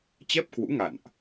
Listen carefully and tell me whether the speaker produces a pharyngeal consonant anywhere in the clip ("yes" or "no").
no